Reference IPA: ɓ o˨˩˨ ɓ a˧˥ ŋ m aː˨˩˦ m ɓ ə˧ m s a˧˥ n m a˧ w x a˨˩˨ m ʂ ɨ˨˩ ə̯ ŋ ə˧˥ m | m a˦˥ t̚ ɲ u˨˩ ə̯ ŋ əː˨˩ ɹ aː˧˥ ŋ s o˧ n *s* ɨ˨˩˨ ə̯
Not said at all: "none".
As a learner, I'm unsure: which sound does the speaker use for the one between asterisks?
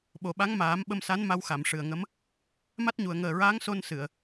s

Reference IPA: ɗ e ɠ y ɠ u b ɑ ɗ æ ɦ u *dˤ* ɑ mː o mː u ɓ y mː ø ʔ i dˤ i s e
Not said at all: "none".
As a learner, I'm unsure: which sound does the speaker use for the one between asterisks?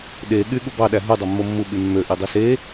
dˤ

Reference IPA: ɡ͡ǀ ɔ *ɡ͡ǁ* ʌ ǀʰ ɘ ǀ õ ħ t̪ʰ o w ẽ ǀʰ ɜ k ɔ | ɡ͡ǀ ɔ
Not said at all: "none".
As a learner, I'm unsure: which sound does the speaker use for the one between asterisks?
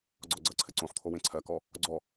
ɡ͡ǀ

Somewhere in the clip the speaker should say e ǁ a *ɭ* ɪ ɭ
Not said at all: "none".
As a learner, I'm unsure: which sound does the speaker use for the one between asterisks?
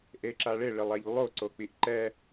ɭ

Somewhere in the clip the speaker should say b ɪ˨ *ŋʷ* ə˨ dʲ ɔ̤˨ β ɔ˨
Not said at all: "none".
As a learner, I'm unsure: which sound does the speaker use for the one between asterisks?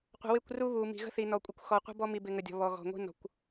ŋ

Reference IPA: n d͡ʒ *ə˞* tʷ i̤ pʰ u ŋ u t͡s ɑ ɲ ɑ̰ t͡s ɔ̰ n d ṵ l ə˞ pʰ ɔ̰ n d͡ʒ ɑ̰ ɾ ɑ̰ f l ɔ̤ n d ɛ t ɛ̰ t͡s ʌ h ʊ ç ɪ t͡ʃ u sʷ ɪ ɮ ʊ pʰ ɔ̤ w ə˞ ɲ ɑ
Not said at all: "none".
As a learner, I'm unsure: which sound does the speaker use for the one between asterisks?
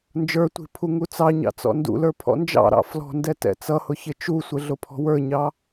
ə˞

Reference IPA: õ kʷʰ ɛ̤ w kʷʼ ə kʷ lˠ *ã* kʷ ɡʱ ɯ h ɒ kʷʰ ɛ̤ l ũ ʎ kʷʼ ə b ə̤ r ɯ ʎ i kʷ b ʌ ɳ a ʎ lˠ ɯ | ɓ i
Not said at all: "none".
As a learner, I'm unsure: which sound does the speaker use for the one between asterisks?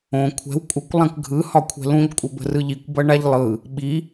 ã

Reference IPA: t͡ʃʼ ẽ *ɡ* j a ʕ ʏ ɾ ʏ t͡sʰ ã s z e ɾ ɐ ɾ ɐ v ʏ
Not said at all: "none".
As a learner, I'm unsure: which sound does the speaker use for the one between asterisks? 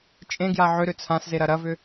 ɡ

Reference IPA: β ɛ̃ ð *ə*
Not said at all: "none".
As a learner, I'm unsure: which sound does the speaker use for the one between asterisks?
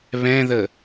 ə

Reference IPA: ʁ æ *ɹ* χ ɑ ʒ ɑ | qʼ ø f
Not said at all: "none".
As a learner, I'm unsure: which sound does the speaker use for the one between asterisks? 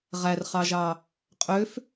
r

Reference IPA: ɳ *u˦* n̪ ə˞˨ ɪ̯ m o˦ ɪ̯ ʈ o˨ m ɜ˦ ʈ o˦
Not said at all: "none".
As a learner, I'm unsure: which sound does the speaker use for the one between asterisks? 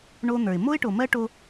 o˦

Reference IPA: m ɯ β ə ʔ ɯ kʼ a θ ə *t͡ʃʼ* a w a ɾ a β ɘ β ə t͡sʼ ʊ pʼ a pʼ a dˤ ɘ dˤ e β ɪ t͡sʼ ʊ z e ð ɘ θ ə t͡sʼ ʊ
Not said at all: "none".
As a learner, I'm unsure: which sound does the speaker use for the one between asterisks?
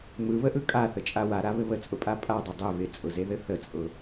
t͡ʃʼ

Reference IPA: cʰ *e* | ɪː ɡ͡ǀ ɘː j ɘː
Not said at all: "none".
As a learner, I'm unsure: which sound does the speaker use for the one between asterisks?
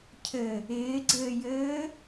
ɘ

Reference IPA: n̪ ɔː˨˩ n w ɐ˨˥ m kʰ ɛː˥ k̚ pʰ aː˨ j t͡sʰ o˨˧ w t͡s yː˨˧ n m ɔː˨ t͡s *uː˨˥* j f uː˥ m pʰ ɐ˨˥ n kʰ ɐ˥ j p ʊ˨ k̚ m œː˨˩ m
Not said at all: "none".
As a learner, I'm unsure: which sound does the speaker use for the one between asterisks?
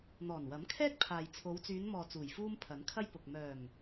uː˨˩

